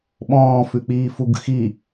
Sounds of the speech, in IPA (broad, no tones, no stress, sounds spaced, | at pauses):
ɓ ɔ̃ː f ʉ k͡p iː f u ɡ x i